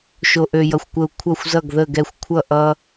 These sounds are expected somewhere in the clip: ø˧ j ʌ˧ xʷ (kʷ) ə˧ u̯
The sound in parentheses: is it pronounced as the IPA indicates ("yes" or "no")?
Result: yes